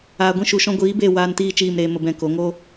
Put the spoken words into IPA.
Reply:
aː˨ ɡʷ ĩ˧ ʃ u˨ ʃ ɔ̃˧ ɡʷ iː˨˦ b e˦˨ w aː˧ n t iː˦˨ t͡ʃ iː˦˨ m ɾ eː˧ m ə˧ b ɛ̃˧ k o˨˦ ŋ o˦

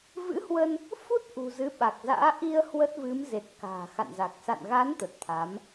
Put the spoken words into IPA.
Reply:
v ɨ̰˧˥ h w ə˧ n | f u˦˥ t̚ ʔ ṳ˨˩ z ɨ˨˦ ɓ a˨˩ k̚ z a̰ː˧˥ ʔ i˧ ə̯ h w ə˦˥ t̚ v ɨ˨˦ m z e˨˩ t̚ k a̤ː˨˩ x a̰˧˨ n z a˨˩ k̚ s a̰˧˨ n ɣ a˨˦ n t̪ ə˨˩ t̚ t̪ʰ a˨˦ m

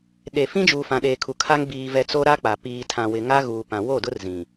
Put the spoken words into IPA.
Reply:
ɗ e˨ f ĩ˦ d͡ʒ uː˨ f ã˨ ɗ eː˨ kʰ u˨ kʰ a˦ ŋ b iː˨ v ɛ˨ t͡s o˦ ɾ a˦ k͡p a˨ p iː˨ tʰ ã˨ w ɪ˨ ŋ a˦ ɣ uː˨ p ã˨ w o˦˨ d ʊ˦ r z ĩ˨

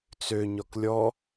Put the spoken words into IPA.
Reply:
t͡s ø ɲ ɔ k lʲ ɔ

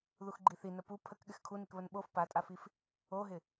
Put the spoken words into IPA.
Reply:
ð u x ɡ͡ǃ i θ i n ə p u pʰ ə k ɠ ɪ x kʰ u n i k β ə n ɓ o f p a tʼ a f i f | o ɦ ɪ

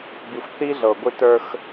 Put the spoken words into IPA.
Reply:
b i˨ xʷ θ i˦ ɮ ɤ˨ ɡʷ i˦ t ə˞˦ x

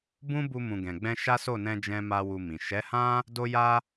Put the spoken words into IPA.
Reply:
b ũ˦ b u˧ m ũ˨ ɡ ɛ̃˨ ɡ͡b ɛ̃˧ ʃ a˦ s o˦˨ n ɛ̃˧ d͡ʒ ɛ̃˦ m a˦ w u˧ m ĩ˨ ʃ ɛ˨˦ h ã˦ | d o˦ j a˦

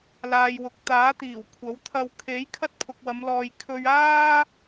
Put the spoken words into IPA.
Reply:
l aː˨ j w ʊ˨ k̚ t̪ aː˨˥ t̪ iː˨˩ w kʷʰ ɐ˨˥ w t̪ʰ ɐ˧ w kʰ e˨˥ j kʰ ɐ˥ t̚ pʰ ʊ˨ k̚ w ɐ˨˧ m l ɔː˨ j kʰ ɵ˧ ɥ aː˥

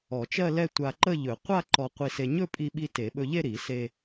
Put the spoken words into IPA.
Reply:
ɔ˨˩˦ t͡ʃ ɜ˥˧ l ɛ˥˧ tʷ a˧ ǃ ə˥˧ ʎ ɵ˨˩˦ qʷ a˥˧ ǃ ɔ˧ qʷ i˧ s e˧ ɲ ɵ˥˧ pʼ i˧ ɓ i˧ t e˨˩˦ ɓ ɵ˧ ʎ e˥˧ ɾ i˨˩˦ s e˧

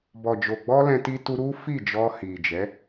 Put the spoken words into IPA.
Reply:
b ɔ˨ d͡ʒ o˨ ɡ͡b ɔ˧ l ɛ̃˧ t i˧ t u˧ ɾ u˦ f i˦˨ d͡ʒ ɔ˧ h i˨ d͡ʒ ɛ˨˦

